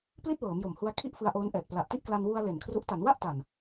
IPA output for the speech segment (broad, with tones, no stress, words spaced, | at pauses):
pli˥˩t̚wɤː˩˦mjo˨˩mhu˧a̯ kʰi˥˩ʔfɯ˧a̯ ʔoː˦˥nʔɛː˨˩t̚ pla˨˩ʔti˥˩ʔkla˧n wu˧a̯ le˨˩nkʰru˦˥ʔ ta˩˦nwa˥˩ʔ ta˨˩n